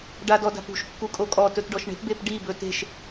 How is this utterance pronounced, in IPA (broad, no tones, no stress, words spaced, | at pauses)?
ɖadɔda̤pṳʃ kːukʼokʼɔ tɵtɖɔʃɳe̤p bepɖi bɵte̤ʃ